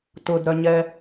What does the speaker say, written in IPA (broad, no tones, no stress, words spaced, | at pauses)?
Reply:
tʊdɾœɲɛ